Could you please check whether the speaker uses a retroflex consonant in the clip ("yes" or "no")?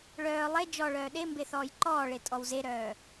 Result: yes